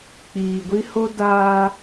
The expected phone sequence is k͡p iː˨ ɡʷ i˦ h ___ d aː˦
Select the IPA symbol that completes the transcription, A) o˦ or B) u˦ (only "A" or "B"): A